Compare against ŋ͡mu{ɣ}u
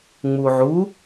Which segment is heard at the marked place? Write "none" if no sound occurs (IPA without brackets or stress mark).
ʕ